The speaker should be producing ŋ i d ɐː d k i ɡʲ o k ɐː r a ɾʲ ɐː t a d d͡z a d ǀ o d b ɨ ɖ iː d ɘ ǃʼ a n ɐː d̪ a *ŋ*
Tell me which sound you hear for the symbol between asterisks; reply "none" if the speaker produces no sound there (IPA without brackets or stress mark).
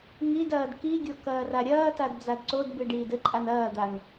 ŋ